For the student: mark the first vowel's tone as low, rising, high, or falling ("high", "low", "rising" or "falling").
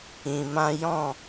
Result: low